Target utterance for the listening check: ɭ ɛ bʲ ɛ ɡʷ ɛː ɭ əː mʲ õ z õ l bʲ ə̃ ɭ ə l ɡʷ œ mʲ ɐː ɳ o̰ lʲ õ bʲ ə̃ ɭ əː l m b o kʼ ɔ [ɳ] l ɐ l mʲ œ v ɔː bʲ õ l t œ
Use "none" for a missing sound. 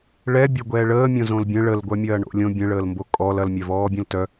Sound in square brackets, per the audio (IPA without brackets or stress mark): none